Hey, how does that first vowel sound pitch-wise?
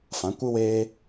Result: rising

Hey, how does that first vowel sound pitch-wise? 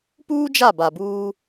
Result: high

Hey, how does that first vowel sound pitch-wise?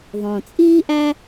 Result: low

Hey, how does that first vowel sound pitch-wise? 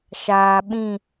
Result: low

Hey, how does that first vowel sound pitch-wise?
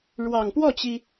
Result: low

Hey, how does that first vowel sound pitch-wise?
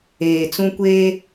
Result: low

